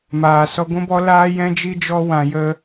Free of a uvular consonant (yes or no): yes